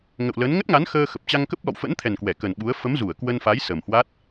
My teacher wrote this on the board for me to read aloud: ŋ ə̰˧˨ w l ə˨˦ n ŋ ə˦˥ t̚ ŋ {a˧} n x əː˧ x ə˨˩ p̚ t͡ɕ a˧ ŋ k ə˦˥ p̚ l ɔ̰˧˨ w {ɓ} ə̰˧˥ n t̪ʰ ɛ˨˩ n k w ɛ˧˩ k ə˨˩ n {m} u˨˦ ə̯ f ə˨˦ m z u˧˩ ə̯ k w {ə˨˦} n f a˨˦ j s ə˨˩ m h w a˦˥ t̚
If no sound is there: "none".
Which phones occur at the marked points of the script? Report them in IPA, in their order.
a˨˦, f, ɓ, ə˧

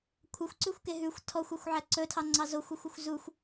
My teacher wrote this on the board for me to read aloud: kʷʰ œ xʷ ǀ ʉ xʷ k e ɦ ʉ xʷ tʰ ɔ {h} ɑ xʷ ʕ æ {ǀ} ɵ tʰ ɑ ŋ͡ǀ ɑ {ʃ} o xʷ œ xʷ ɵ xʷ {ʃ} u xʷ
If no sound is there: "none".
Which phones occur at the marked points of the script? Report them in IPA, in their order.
xʷ, ǀ, z, z

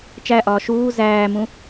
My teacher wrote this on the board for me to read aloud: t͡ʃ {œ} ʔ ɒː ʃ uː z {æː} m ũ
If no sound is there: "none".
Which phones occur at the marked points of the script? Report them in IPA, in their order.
æ, æː

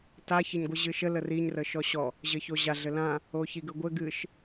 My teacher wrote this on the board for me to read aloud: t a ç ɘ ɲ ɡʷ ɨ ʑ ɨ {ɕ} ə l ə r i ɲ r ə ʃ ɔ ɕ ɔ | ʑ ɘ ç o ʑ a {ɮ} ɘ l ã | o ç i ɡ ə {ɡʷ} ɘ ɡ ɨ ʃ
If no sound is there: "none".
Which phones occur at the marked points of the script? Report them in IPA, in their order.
ʃ, ɮ, ɡʷ

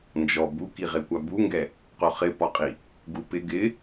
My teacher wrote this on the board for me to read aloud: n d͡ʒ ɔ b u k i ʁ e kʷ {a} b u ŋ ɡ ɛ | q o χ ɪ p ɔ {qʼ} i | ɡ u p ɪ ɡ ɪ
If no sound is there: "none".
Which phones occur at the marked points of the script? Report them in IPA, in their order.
a, qʼ

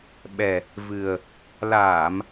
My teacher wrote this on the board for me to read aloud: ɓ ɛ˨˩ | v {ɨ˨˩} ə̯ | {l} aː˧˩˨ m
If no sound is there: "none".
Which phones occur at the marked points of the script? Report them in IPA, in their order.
ɨ˨˩, l

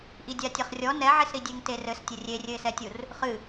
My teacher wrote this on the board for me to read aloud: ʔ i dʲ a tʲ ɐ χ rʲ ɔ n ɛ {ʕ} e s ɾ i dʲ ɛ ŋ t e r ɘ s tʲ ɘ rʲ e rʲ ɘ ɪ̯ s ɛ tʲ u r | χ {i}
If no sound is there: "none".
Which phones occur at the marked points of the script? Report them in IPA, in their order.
ʕ, ɨ

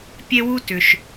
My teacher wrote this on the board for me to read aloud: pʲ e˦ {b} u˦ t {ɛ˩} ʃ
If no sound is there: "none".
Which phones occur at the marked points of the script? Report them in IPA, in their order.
w, ʏ˩

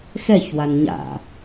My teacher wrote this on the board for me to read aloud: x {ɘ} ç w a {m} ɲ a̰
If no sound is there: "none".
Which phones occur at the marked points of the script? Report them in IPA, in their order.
ɛ, n

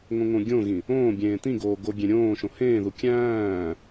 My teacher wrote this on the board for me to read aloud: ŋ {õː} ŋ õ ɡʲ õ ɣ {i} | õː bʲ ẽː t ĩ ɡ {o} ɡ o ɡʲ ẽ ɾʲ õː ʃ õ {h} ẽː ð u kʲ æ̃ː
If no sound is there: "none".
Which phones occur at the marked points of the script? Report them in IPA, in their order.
õ, ĩ, oː, h

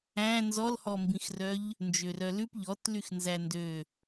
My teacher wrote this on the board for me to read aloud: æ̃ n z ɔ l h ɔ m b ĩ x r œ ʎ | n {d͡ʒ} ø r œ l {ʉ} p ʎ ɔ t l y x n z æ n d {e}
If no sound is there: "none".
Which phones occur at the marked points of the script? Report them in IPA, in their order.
d͡ʒ, ʉ, ø

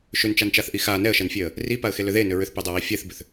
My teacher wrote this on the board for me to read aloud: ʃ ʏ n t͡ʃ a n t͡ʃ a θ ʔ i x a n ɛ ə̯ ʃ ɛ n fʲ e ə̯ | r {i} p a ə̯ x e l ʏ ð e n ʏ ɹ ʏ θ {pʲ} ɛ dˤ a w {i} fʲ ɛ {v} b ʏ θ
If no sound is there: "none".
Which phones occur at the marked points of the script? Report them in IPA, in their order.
i, p, i, θ

